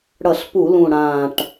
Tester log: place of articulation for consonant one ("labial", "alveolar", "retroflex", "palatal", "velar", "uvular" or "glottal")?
retroflex